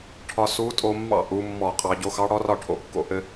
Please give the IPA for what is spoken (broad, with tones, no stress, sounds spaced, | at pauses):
ʈʰ ɒ˧ s u˧˥ tʼ o˧ mː ɑ̰˥˩ ʔ u˩˧ mː ɔ˧˩˧ qʼ ɑ˩˧ ɟ o˧ x ɑ˧˥ ɽ ɔ˧˥ r ɒ˥˩ ʈʰ o̰˧˥ kː o̰˩˧ ʔ ɘ˧